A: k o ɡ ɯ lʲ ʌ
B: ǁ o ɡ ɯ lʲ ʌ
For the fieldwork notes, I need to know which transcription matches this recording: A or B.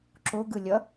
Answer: B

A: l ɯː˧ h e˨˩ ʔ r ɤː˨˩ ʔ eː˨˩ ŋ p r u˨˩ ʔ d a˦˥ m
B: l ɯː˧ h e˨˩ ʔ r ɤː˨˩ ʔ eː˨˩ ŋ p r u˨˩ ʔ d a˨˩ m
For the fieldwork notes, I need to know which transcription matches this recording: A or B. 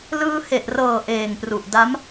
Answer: A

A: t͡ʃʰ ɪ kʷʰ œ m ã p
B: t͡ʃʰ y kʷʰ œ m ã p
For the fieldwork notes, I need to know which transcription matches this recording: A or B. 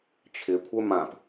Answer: A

